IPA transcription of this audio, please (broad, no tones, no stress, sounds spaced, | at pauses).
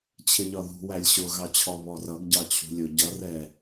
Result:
t͡ɕʰ ɪ ʎ ɒ ð ṳ w æ lʲ ɕ ʊ ɣ ɑ t͡ɕʰ ɔ β ɔ r ʌ ɡ ɟ ɑ t͡ɕʰ ṳ lʲ ʊ ɟ ʌ r ɛ